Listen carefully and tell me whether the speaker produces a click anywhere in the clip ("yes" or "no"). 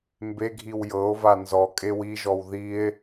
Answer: no